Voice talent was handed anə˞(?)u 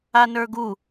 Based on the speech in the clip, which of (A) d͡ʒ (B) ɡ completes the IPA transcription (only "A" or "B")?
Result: B